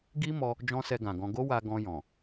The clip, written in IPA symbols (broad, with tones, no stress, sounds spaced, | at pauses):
ɡ i˦ m ɔ˧ | d͡ʒ ɔ̃˦ s ɛ˧ ɡ ã˨ ɡ ɔ̃˧ ɡ o˦ w a˧ ɡ ɔ̃˧ j ɔ̃˨